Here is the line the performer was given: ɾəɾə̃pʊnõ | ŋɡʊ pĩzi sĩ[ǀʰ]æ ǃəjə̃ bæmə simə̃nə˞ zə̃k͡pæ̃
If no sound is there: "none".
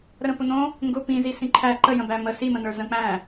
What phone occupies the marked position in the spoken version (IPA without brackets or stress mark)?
ǃʰ